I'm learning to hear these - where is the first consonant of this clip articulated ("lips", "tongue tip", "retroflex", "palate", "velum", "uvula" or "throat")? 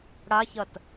retroflex